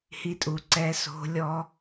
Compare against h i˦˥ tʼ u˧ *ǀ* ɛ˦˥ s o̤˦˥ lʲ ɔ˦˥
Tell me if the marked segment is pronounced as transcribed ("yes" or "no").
yes